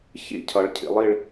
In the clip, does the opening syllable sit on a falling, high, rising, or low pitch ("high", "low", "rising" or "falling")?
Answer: falling